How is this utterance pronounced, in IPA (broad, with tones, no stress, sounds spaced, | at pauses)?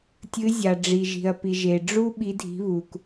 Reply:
tʲ ɨ˨˦ zʲ a˩ ɖ͡ʐ i˩ ʒ i̤˩ ɐ̯ p i˩ ʒ e˩ ɖ͡ʐ u˥ ɓ i˨˦ dʱ i̤˨˦ β u˩ k